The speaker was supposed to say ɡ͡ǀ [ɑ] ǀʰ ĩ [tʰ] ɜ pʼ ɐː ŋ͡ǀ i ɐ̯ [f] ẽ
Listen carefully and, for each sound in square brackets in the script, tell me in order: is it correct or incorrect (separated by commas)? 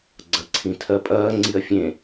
incorrect, correct, incorrect